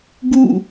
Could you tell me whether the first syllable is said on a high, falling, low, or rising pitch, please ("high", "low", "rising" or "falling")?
falling